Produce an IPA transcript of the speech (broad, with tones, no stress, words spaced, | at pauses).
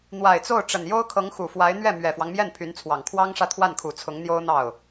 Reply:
n̪wa˨˩ɪ̯t͡so˥˩ʊ̯ʈ͡ʂə˨˩n jo˥ʊ̯kʰɤ˧˥ŋxu˨˩fwa˧˥ɪ̯ n̪ɥɛ˥˩mɥɛ˨˩fwɑ˦ŋ mjɛ˥˩npʰy˧˥nt͡sʰwɑ˨˩ŋ kʰwɑ˥ŋʂä˥˧t̪ʰwa˥˩nkʰu˨˩ t͡sʰʊ˧˥ŋn̪jo˥ʊ̯n̪ɑ˥˩ʊ̯